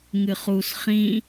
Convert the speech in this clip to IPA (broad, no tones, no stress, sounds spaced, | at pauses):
ŋ ɨ χ u s χ ĩ